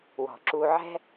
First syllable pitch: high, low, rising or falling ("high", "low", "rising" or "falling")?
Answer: low